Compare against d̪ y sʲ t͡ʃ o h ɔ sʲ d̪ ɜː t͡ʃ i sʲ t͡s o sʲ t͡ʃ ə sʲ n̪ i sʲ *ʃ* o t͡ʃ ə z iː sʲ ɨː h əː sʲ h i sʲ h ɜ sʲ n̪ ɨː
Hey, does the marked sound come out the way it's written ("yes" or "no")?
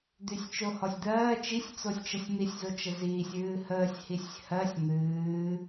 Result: no